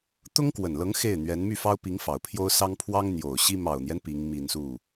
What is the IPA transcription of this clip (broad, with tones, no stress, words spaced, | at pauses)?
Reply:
t̪ʊ˥ŋkwə˨˩nlɤ˧˥ŋ xe˥˩ɪ̯n̪ɥɛ˧˥n my˥˩fɑ˥ʊ̯pi˧˥ŋ fɑ˨˩ʊ̯pʰjo˥ʊ̯sɑ˥ŋ pʰwɑ˥ŋn̪jo˨˩ʊ̯ɕi˥ mɑ˨˩ʊ̯n̪jɛ˦n pi˧˥ŋmi˨˩n su˥˩